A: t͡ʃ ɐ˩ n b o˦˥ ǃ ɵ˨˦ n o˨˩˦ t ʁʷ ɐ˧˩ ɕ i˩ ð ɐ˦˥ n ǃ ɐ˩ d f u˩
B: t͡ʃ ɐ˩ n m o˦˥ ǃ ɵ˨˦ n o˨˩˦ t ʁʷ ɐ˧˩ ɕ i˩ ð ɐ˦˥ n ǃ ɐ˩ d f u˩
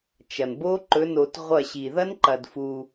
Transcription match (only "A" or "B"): A